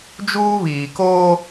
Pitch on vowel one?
high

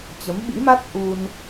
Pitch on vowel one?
rising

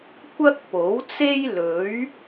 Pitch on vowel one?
high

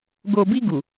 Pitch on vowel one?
low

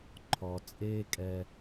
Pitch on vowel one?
low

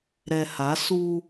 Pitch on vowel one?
low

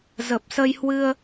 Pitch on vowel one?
low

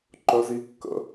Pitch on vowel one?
low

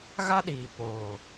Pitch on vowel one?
high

